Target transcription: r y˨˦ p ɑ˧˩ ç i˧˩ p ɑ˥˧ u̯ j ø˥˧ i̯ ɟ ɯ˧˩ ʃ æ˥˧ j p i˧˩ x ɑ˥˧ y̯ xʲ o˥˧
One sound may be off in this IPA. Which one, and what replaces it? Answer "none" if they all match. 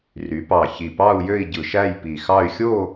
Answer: none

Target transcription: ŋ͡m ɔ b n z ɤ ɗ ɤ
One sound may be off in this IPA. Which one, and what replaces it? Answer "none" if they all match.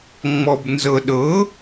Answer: none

